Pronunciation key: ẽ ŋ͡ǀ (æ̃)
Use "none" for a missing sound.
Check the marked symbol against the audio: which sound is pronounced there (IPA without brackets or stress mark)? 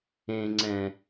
ɛ̃